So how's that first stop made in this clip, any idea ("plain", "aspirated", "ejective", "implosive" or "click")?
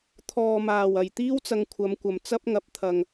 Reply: aspirated